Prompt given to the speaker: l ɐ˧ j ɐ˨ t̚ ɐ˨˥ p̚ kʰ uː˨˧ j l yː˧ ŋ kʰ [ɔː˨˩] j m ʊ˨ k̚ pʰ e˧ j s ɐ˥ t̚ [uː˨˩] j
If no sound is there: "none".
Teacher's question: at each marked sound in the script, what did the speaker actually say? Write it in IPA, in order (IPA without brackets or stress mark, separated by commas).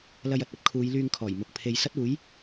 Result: ɔː˨˩, uː˨˥